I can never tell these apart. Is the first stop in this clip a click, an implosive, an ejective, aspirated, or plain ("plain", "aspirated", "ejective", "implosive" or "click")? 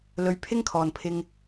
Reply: aspirated